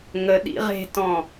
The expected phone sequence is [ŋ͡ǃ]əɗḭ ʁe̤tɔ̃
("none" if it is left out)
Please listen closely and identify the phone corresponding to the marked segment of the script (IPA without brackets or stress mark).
ŋ